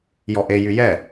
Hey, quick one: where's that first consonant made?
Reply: palate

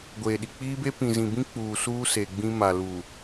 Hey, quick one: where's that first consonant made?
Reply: velum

